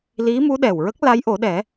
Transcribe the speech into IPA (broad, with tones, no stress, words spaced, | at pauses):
li˧˥mu˧˥ɗɛ˨˩wɹə˦˥k̚ la˧˥jʔo˨˩˦ɗɛ˨˩˦